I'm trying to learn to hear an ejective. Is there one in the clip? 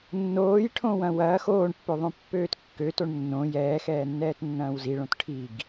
no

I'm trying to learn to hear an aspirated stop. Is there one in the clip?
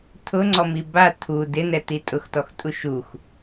yes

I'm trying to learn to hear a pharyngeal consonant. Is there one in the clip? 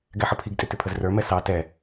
yes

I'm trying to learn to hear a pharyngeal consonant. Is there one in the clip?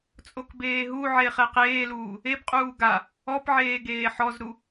yes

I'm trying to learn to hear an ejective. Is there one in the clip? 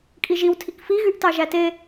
yes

